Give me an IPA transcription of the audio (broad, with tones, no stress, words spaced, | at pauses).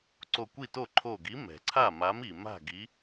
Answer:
ǀo˧˩kʷi˥˩to˥˩ ǃʰo˧˩ɡi˨˥ mɛ̤˩ǀʰa˥˩ma˨˥mi˩ ma̤˥˩ɡi˨˥